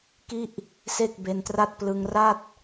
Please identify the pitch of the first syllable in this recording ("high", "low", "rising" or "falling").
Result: falling